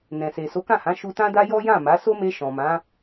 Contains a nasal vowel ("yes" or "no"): yes